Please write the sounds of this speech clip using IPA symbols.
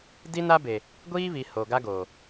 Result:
d i˦ n a˦ b e˨ | ɡʷ iː˦ β i˨ h o˨ ɡ a˦ ɡ o˨

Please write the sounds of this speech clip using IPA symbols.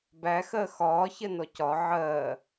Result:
b æ x ɜ x ɒː ç ɜ n ɔ c ɒ ʕ ɜ

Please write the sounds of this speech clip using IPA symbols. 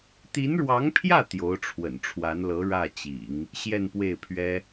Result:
t̪ i˧˥ n ɻ w ɑ˧˥ ŋ pʰ j ä˥˩ t̪ j o˧˥ ʊ̯ ʈ͡ʂʰ w ə̰˨˩ n ʈ͡ʂʰ w a˧˥ n l ɤ˧˥ ɻ ä˥˩ t͡ɕ ḭ˨˩˦ ŋ | ɕ j ɛ˥˧ n p w e˥˩ ɪ̯ pʰ ɥ ɛ˥

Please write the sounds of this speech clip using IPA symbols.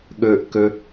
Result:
ɠ ɵ ʔ k ɵ

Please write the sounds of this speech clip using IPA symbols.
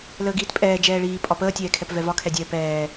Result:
l əː ɡ iː t pʼ ɛː d͡ʒ ɛː ɭ iː pʼ ɒ p əː tʲ ɛː kʰ ɛ p v ɛ v ɒ kʰ ɛ dʲ ɛː p ɛː

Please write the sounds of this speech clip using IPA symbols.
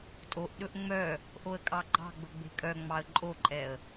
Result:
tʼ o ʔ ɗ ɵ ʔ ŋ͡m œ | ʔ o ə̯ kʼ ɑ ɡ͡ǃ ɑ̤ ɡ͡b ɵ ɡ͡b e̤ kʼ œ ŋ͡m ɑ ə̯ ǃʼ o ǃʼ ɛ ə̯

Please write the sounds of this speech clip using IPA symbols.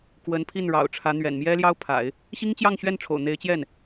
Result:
k w ə˧˥ n pʰ i˥˩ n ɻ ɑ̰˨˩ ʊ̯ ʈ͡ʂʰ ä˧˥ n̪ ɥ ɛ̰˨˩ n m j ɛ˥ l j ɑ˥ ʊ̯ pʰ a̰˨˩˦ ɪ̯ | ɕ i˥ ŋ t͡ɕ j ɑ˥˧ ŋ ɕ ɥ ɛ˥˩ n ʈ͡ʂʰ o̰˨˩ ʊ̯ n̪ e˧˥ ɪ̯ t͡ɕ j ɛ˥˩ n

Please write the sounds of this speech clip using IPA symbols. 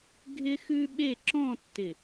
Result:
ɡʱ ɪ˥ x ʉ˥ ɓ e˥˧ ǁ ɔ̃˥˧ tː ɪ˧˩

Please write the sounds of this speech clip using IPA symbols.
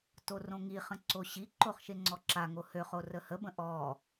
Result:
t o r õ ŋ i χ ə̃ ǀ o ɕ i ǃ o χ ʃ e ŋ͡ǀ ɔ ǁ a ŋ o h ø χ o r ə h ə b ə̃ ʔ ɔ

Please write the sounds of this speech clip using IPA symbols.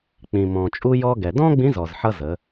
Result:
k͡p ĩ˩ m ɔ̃˩ t͡ʃʼ u˧ j ɔ˧ ɡ ɛ˩ d ɔ̃˥ ɡ͡b ĩ˧˥ z ɔ˩ z ħ ʌ˧ z ə˩˧

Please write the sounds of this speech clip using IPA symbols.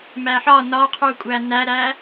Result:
m æ ħ ɒ n ɒ qʰ u kʷʼ æ n æ ɾ æ

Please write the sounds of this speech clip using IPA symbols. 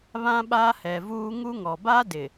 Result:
β ã˦ ɓ aː˦ h ɛ˨ v uː˦ ŋ u˦ ŋ ɔ˨ b a˦ d ɪ˨

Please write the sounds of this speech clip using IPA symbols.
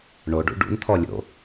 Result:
ɳ o ɖ ṵ ɖ ṵ n t̪ʰ ɔ lʲ o̰

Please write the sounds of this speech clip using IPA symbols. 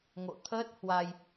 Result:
ŋ o̰˧˨ t̪ʰ əː˦˥ t̚ h w a˧ j

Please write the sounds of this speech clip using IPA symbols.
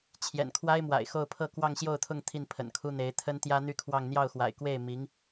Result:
t͡ɕʰ j ɛ̰˨˩ n kʰ w a˥ ɪ̯ m w a̰˨˩ ɪ̯ x o˥˧ ʊ̯ pʰ ɤ˥˧ k w ɑ˥˧ ŋ ɕ j o˥˧ ʊ̯ t̪ʰ ʊ˥˧ ŋ t̪ʰ i˥˩ n pʰ ə̰˨˩ n kʰ u˥ n̪ e˧˥ ɪ̯ t̪ʰ ə˥ n t̪ j ä˥ n̪ y˥˧ kʰ w ɑ˥˧ ŋ n̪ j ɑ˥˩ ʊ̯ x w a̰˨˩ ɪ̯ k w e˥˩ ɪ̯ m i˧˥ ŋ

